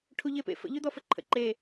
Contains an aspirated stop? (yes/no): yes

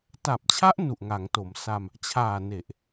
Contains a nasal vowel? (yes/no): no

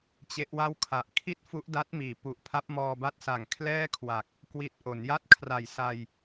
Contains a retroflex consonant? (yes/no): no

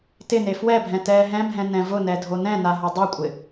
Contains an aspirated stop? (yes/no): no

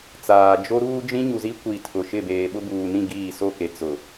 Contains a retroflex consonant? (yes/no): no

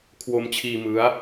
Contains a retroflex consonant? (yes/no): no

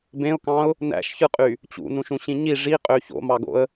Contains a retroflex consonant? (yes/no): yes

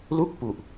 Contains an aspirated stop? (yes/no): no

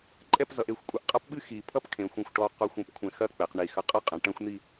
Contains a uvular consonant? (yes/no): yes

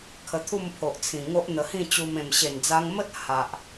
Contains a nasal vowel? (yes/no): yes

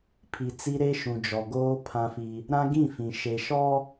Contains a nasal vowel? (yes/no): yes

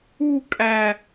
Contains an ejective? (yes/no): yes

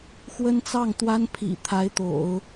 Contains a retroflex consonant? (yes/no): no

